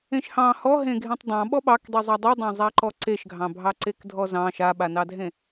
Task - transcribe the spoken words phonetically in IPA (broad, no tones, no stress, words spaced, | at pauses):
ẽʃhɑ̃ hɔɦẽ ɡʱẽtˤdˤɑ̃ɓɔ ɓɑkdˤizˤa dˤidˤɑ̃zˤaǃɔ ǀeʃɡʱɑ̃bʱɑǀek dʱɔzɑ̃ ʃaɓanɑdʱẽ